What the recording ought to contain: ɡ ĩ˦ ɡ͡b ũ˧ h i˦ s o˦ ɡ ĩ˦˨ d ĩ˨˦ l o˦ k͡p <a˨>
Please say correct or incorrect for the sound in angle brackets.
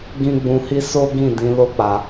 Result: incorrect